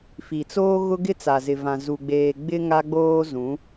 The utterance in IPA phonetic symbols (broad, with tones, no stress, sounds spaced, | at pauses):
f i˨ t͡s oː˦ ɣ ʊ˦ ɡ ɪ˦ t͡s a˨ z ɪ˨ v ã˨ z u˨ ɡ͡b eː˨ ɡ͡b ɪ˦ ŋ a˦ ɡ͡b oː˦ z ũ˨˦